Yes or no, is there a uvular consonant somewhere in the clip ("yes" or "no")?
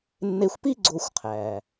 yes